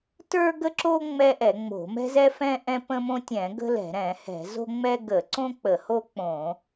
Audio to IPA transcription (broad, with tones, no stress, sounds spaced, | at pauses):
t ə˞˥ ɡ ə˥ ǁ o˥ ŋ͡m ɛ˥ ʔ ɛ˧˩˧ ŋ͡m o̤˧˩˧ m ɛ̤˥ z ɛ˥ f ɛ̃˥ ʔ ɛ̃˥ p ə̃˥ m õ˥ tʲ ɛ̃˧˩˧ ɡ ə̤˥ l ɛ̤˧˩˧ ɾ ɛ̃˧˩˧ h ɛ̤˧˩˧ z o̤˥ ŋ͡m ɛ˥ ɡ ə˧˩˧ ǀ õ˥ k͡p ə˧˩˧ h o˥ k͡p õ˧˩˧